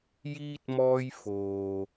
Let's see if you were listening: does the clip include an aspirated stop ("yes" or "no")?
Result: no